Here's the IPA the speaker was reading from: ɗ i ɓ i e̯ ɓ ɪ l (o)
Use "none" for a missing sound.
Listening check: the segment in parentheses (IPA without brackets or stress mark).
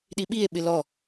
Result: ɔ